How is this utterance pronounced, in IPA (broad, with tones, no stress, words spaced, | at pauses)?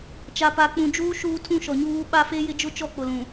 t͡ʃa˨pa˨k͡pũ˨d͡ʒuː˦ ʃuː˦tʰũ˦ʃɔ˨ɲuː˦ ɓa˦fe˦jɪ˦ d͡ʒʊ˦t͡ʃɔ˦˨k͡pʊ˨lũ˨